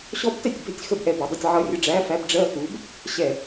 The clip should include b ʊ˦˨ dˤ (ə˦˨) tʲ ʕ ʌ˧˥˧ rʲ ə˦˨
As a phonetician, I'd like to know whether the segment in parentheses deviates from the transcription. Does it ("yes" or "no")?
no